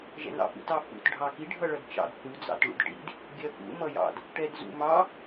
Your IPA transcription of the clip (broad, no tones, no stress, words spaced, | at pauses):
ʒɛ̰nɑ̰fṵt ɑfṵt ɖʱɑki ɖʱʌɭʌdt͡ʃɑ̰d θu d͡zɑ̰tɭṵdʈḭd | ɡʲɜfṵ mʌjɑ̰d | ʈɛdzṵ mɑ